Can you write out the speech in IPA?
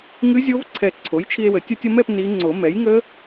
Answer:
ŋ ɨ˦˥ zʲ o˦˥ v ǀʰ ɛ˧˩ ǀʰ o˩˥ j t͡ʃʰ i˧ e̯ w ə˨˩˦ tʲ ə˧ tʲ ə˧ m ɛ˥˨ p n i˦˥ ŋ͡ǀ o˨˩˦ m ɛ˩˥ j ŋ ə˦˥

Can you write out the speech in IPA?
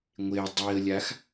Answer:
ŋʷ e dˤ i ə̯ lʲ a x

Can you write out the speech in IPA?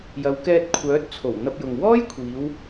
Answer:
j ɐ˨˧ w k ɛː˧ t̚ kʷʰ œː˨˥ t̚ t͡sʰ o˨˩ w n̪ ɐ˧ p̚ j ʊ˨ ŋ w ɔː˥ j kʷʰ iː˨˧ w

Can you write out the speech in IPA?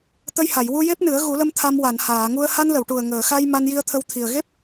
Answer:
t̪ ə˧ j h a˨˩˨ j w u˧ j e˦˥ p̚ n ɨ˨˩˦ ə̯ ɣ u˨˩˦ l ə˧ m t̪ʰ a˧ m w a˨˩˨ n h aː˨˩˨ ŋ u˧ ə̯ h a˧ n l ə˨˩˨ w ʈ u˨˩ ə̯ ŋ əː˨˩˨ x a˧ j m a˧ n j i˧ ə̯ t̪ʰ ə˧ w t̪ʰ i˨˩ ə̯ ɣ e˦˥ p̚

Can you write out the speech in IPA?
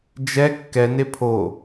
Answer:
d͡ʒ ɛ kː ɛ n e pʰ o

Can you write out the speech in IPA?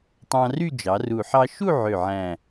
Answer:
tˤ ɑ̃˧ r y˥˧ d͡ʒ ɑ˩˧ r u˨˩ ħ ɑ˧ ʃ u˥˧ ʕ ø˨˩ ʕ æ̃˨˩

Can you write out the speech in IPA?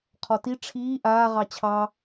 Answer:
qʰ ɔ t i ʈ͡ʂʰ iː ʔ aː ʁ ɑ t͡ɕʰ ɑ

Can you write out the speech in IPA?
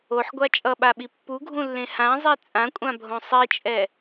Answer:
o ħ ɡʷ a t͡ʃʼ ʌ ɓ a ɓ i pː u ɡʱ ũ lː ẽ h ã zˤ i t͡sʼ ã kʷʼ ã bʱ õ sˤ i t͡ʃʼ ɛ

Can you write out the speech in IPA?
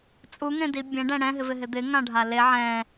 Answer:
t͡sʼ u ŋ ẽ d i bʲ ɛ̃ ɖ ɛ̃ ɽ ɛ̃ ɦ ɪ v ɪ ɦ ɪ d̪ ɪ ŋ ã ɖʱ a l e ʕ ɛ̃

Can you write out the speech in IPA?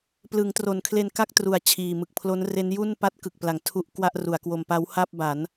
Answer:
p l ɯː˩˦ ŋ t r o˩˦ n kʰ l e˧ n k a˥˩ k̚ t r u˩˦ a̯ t͡ɕʰ iː˨˩ m ɯ˨˩ k̚ pʰ l o˦˥ n r e˦˥ n j u˥˩ n p a˦˥ t̚ k ɯ˨˩ k̚ p l a˩˦ ŋ tʰ u˦˥ ʔ k w a˥˩ ʔ r u˩˦ a̯ k w o˧ m p a˦˥ w h a˥˩ p̚ b a˩˦ n

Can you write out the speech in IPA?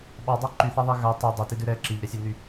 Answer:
ɓ ɑ dˤ ɑ ǃ y θ a ðˤ ɛ ɣ a tˤ u dˤ a t i d ʉ ɾ ɛ ǁ i ʎ ɾ ɛ sʲ ɛ n y

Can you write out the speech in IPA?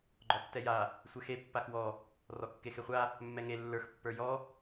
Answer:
ɡ͡ǃ ɔ tː ɛ j a | sʷ ɛ x e pː a x w ɔ | r ɔ kː e x e χʷ a | mː ɛ ŋ e lː ə˞ x pː ə˞ j ɔ

